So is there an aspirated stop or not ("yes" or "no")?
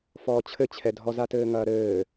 yes